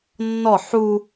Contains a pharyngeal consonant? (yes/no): yes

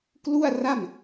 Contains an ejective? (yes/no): no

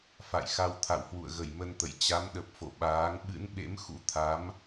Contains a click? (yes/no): no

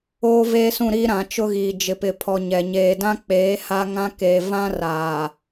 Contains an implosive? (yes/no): no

